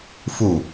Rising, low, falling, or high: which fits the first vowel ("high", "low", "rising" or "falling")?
falling